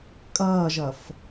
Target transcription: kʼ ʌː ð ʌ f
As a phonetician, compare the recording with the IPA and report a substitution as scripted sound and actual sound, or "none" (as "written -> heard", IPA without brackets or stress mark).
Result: ð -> ʒ